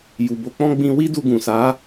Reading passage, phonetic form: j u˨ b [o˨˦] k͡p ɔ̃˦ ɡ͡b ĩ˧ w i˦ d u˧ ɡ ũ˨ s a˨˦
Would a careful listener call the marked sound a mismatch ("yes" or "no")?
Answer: no